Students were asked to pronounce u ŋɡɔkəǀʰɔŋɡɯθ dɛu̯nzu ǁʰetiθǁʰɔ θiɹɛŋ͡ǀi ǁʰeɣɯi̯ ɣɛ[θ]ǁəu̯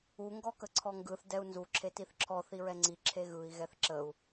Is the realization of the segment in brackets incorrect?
no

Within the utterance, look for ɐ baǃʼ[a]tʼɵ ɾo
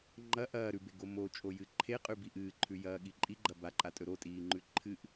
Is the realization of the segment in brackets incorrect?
no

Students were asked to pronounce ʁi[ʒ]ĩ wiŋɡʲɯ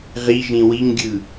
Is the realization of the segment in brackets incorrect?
no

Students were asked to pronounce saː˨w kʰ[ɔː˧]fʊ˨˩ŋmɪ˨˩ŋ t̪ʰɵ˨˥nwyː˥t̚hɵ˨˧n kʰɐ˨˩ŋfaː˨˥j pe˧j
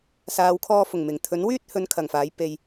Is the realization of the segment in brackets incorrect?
no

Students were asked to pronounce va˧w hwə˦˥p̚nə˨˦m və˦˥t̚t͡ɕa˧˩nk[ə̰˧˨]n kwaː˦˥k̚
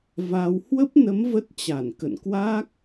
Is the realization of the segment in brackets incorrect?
no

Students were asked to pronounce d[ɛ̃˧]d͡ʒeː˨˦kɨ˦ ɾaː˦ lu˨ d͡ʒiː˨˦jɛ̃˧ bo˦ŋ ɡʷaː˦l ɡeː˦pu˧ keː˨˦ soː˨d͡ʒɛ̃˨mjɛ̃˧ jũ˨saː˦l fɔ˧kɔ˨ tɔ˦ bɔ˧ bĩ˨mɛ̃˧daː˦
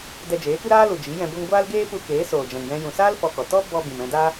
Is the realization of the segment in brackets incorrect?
yes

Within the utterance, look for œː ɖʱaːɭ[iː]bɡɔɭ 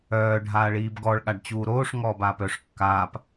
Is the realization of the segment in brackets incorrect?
no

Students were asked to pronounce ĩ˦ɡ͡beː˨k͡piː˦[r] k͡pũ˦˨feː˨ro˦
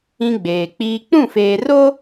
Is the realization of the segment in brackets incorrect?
yes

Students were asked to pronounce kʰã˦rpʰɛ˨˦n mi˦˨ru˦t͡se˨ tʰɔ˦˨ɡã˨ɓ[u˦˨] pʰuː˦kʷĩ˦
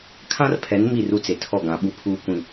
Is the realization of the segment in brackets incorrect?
no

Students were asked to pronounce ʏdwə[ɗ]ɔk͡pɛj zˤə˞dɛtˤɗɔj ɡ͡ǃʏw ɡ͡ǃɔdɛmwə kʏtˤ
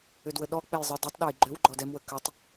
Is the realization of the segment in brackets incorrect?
no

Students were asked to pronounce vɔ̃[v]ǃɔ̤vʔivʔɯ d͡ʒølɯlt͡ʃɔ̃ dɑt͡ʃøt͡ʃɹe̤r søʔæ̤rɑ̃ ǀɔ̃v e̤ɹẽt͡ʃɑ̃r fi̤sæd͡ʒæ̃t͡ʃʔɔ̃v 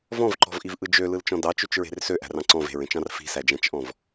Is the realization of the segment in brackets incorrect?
no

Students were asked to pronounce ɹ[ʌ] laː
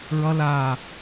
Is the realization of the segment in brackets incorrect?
no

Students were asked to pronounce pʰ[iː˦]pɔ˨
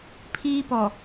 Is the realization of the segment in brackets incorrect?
no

